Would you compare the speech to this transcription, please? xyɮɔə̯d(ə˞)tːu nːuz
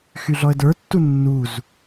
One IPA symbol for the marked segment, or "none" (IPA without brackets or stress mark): ə˞